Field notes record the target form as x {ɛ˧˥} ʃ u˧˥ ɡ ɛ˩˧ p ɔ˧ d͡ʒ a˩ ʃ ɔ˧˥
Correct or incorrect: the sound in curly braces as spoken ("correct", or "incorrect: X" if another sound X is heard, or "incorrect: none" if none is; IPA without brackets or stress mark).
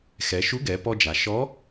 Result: incorrect: ɛ˩˧